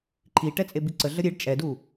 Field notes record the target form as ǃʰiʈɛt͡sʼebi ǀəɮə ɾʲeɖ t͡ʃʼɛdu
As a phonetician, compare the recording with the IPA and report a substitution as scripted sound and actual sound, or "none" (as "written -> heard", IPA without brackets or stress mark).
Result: none